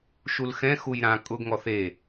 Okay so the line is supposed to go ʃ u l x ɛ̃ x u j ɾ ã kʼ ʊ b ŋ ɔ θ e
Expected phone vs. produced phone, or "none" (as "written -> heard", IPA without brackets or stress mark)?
b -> ɡ